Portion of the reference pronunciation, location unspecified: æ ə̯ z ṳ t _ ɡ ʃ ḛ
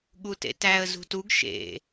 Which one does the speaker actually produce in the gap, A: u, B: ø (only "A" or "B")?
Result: A